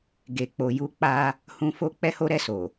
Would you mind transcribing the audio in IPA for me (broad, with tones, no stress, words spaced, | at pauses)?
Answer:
ɡe˧k͡po˧ju˦ k͡pa˦ | hũ˧fo˦ k͡pɛ˦ho˦ɾɛ˦˨so˨